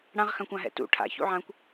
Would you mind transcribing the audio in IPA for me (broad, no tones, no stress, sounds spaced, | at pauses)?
ɽ ã ʁ x ã kʷ ã ɦ ɛ̰ t ṵ ʈʰ a̰ ç ṵ ʕ ã kʷ